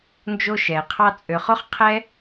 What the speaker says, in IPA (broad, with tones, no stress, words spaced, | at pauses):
nd͡ʒo˦ʃɛ˨qʰɑ˦ t͡sʼø˨χo˦χqʰɛ˦